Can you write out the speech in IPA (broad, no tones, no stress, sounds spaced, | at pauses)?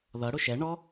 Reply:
ð ʌ ɽ ʊ ʃ ɛ ɳ ɔ